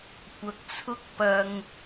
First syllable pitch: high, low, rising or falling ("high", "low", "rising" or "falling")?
low